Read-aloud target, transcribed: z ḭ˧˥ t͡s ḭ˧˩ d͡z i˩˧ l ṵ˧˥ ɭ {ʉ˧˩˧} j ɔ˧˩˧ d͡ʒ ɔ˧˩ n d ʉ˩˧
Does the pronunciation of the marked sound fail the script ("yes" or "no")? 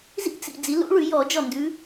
no